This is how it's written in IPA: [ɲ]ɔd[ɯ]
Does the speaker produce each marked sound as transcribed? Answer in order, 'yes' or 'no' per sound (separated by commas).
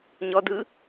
yes, yes